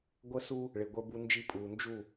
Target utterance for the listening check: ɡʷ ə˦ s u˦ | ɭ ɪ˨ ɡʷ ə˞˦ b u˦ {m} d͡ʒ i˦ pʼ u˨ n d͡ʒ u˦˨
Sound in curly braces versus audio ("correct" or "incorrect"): incorrect